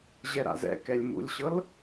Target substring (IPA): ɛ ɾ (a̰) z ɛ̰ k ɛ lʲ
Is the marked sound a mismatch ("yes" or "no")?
no